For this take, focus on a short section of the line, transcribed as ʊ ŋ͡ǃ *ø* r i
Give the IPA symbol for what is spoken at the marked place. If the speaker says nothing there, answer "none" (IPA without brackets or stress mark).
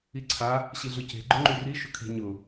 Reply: y